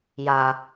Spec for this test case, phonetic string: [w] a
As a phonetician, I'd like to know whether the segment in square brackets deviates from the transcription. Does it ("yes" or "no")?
yes